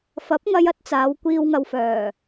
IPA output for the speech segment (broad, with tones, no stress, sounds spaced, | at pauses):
f ɐ˨˥ p̚ ŋ ɐ˧ j ɐ˥ t̚ t͡s aː˨˧ w kʷ iː˨ w ŋ ɐ˨ w f œː˨˩